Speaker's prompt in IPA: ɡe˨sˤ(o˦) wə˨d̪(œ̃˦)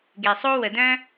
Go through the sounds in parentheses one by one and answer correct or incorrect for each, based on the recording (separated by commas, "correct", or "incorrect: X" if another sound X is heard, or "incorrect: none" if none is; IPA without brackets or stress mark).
correct, correct